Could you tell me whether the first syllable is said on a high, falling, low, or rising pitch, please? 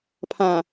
low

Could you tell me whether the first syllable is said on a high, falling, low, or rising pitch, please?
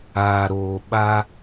low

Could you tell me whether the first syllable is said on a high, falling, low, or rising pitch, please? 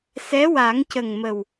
rising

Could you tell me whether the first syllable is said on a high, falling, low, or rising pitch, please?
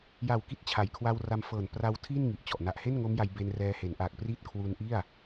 low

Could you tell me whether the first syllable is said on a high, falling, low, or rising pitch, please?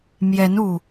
rising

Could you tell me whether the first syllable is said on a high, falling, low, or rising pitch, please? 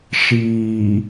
low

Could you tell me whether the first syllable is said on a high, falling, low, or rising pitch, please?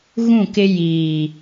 falling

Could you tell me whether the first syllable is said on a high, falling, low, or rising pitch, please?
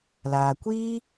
low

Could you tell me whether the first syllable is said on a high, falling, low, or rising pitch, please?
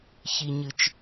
low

